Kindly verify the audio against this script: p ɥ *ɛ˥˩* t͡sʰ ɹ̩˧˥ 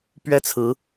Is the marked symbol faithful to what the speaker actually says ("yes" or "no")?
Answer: yes